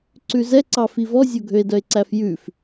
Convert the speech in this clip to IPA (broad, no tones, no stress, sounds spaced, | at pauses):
ǀ ʉ z ɛ ǀ ɑ f i v ɔ zʲ o ɡʱ ø e̯ d œ e̯ ǀ æ f j ʉ f